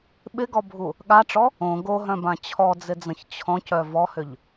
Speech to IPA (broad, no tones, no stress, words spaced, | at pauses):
ɓɪɡɔbʱu | ɠaʈ͡ʂɔ | õ ɡoɦœ̃bã t͡ɕʰɔd͡zɪd͡zə̃ç t͡ɕʰɔ̃cœ vɔhʏʎ